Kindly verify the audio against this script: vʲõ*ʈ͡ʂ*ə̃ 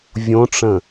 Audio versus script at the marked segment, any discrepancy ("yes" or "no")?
no